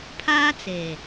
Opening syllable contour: high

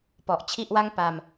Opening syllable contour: low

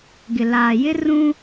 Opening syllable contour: low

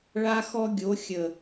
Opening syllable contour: high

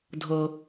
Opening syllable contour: low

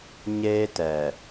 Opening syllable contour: high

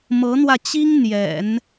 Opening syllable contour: rising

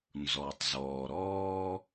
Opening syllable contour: low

